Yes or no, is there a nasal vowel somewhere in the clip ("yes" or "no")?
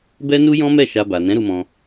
yes